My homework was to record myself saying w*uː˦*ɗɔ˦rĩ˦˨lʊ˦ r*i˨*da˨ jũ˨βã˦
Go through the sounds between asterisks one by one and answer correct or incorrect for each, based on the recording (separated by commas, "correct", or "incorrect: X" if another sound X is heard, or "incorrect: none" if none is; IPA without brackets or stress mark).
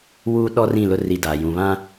correct, incorrect: i˦